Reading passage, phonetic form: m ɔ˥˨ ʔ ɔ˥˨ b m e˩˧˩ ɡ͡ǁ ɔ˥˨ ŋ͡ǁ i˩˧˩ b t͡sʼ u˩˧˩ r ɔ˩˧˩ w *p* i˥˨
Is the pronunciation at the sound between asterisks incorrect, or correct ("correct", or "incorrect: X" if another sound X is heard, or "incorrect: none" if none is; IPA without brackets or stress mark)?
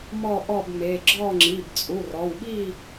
incorrect: ɓ